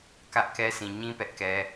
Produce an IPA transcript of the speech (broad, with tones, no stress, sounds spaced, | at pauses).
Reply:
k ä˦ ʔ k ɛ˦ sʰ ĩ˨ ɲ ĩ˦ p ɛ˦ ʔ k ɛ˦